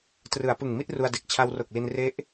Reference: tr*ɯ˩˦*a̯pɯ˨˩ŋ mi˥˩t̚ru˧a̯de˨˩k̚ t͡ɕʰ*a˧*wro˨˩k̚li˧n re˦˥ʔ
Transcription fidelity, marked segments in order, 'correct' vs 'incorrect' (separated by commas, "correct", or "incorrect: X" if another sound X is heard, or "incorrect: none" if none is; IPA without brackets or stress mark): correct, correct